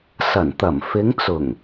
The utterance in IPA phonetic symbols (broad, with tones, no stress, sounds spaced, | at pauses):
s ɐ˨˩ n t̪ ɐ˨˩ m f ɪ˨˧ ŋ t͡s ʊ˨˩ ŋ